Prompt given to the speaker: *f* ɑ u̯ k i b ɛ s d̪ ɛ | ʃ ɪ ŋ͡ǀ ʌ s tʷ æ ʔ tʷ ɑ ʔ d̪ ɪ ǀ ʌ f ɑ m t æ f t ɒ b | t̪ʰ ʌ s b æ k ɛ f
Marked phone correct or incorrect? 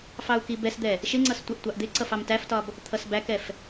correct